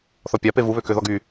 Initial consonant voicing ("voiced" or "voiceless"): voiceless